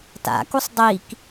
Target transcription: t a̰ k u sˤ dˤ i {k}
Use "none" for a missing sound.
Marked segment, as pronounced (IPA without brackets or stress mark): k